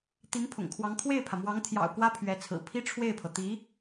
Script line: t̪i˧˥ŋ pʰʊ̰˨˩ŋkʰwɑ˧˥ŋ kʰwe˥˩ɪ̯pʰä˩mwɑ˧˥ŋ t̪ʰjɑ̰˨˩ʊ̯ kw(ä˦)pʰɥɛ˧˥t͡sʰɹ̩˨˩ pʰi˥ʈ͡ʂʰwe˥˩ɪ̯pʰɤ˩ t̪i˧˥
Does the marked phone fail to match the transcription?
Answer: yes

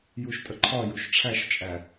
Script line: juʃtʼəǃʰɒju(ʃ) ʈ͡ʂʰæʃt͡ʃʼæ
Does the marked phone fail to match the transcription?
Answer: no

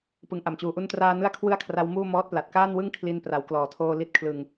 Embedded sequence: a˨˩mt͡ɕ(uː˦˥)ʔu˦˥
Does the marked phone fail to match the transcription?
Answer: yes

